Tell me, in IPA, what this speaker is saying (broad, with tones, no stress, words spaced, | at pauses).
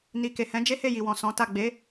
ni˨ke˨hɛ̃˨˦ d͡ʒe˦he˦˨ji˨ wɔ̃˨sɔ̃˨˦ta˦˨ ɡ͡be˨˦